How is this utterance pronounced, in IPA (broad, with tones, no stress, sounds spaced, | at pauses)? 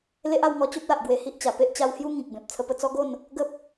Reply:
l e˦ ʔ a˧ w ŋ ɔ˧ t͡ɕ o˦ p̚ l a˨ ʔ ɡ w e˧ h i˦ ʔ t͡ɕ a˨˩ p e˦ ʔ t͡ɕ a˧ w h j u˦ ŋ ĩ˨ k̚ b ẽ˨ p̚ t͡sʰ ə˧ p ə˧ t͡s ɔ˦ ɡ o˥˧ n | ɡ ə˦ p̚